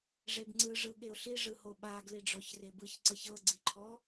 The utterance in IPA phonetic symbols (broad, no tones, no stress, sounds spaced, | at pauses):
ʐ e b ŋ͡ǀ ɯ ʐ ɯ ɠ e ʊ̯ ɬ i ʐ ɯ h o ɓ a ɡ l i ɖ͡ʐ ɔ ç r e b ɯ ç ǀ ɤ ç ɤ ɡ͡ǀ i ǃʰ ɔ